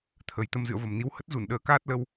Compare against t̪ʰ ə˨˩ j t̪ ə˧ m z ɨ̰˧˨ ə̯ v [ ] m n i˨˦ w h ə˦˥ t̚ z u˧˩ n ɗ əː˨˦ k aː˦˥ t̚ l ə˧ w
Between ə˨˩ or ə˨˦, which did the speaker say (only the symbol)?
ə˨˩